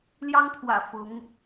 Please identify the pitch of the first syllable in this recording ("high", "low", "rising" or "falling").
high